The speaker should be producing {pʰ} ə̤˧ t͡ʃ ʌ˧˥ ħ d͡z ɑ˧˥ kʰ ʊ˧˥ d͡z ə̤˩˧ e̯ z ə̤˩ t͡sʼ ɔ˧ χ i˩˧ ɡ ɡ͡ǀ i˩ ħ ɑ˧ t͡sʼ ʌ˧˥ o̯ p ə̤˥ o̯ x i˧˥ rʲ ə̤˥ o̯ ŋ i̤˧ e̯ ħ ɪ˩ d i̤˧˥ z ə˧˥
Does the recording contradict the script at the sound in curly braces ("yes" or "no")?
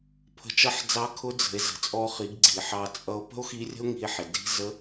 no